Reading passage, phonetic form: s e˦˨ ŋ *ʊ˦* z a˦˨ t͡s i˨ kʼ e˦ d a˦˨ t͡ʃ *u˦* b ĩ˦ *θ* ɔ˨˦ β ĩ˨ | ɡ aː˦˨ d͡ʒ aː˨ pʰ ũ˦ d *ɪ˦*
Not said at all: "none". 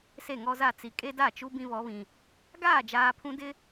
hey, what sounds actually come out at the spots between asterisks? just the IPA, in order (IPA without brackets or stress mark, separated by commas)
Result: ɔ˦, u˦, β, ɪ˦